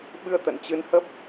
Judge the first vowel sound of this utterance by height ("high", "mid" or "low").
high